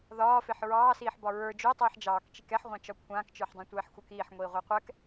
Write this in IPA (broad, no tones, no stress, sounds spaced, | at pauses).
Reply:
ð ɒː f e ħ ɹ ɑː s iː ħ b ɒ ɹ ə˞ d͡ʒ o tˤ iː ħ d͡ʒ ɑː k t͡ʃ i k ɛ ħ ʁʷ ã t͡ʃ ɒ kʷʰ ãː k t͡ʃ ə˞ ħ dˤ ã tʷ ɛː ħ xʷ ə˞ k iː ħ ŋʷ iː ʁʷ e qʷ ɛ k